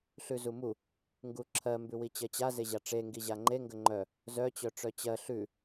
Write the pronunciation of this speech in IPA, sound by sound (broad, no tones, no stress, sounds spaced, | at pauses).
ɬ ʉ z u m u | ŋ ɡ u ǁʰ ɜ m b ʉ w i t͡ɕ ɜ t͡ɕ a z e ʑ a ʈ͡ʂ e ŋ ɡ i ʑ a ŋ͡ǃ e ŋ ɡ ə ŋ͡ǃ œ | z œ t͡ɕ œ ʈ͡ʂ œ t͡ɕ ɜ ɬ ʉ